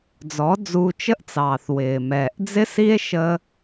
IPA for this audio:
d͡z ɔ˨˦ d͡z uː˧ t͡ʃ ə˦ ʔ t͡s ɑː˨ θ w ɪː˨ m ɛː˨ ʔ d͡z ɪ˦ s i˦ e̯ ʃ ə˦

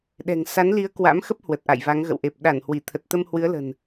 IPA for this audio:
ɗ ɛ̤˨˩ ŋ s a˨˦ n l i˨˦ ə̯ k w a̰˧˥ m x ə˦˥ p̚ h w ə˨˩ t̚ ʔ a̰˧˨ j v a˨˦ ŋ ɣ ə̰˧˨ w ʔ e˨˩ p̚ ɗ a˧˩ n h w i˧˩ t̪ʰ ə˨˩ t̚ t̪ ə˧ m h w ɨ˨˦ ə̯ l ə̤˨˩ n

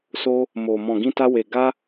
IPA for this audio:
s o˧ | m o˨ m ɔ̃˨ ɡ ĩ˧ t a˧ w e˨ ɡ a˧

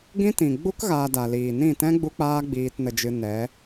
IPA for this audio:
ɡ ĩ˦ t ĩ˨ ɡ͡b u˦ k ɣ aː˧ d a˨ l iː˨ n ĩ˦˨ t ɛ̃˦ ɡ͡b u˦ k͡p aː˦ ɡ͡b iː˧ t n ə˧ d͡ʒ ɨ˧ n ɛ˨˦

